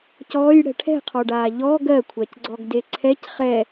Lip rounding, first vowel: rounded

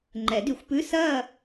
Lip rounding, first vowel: unrounded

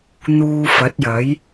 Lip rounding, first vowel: rounded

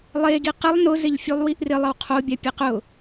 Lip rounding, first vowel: unrounded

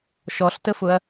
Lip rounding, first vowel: rounded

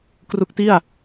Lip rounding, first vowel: rounded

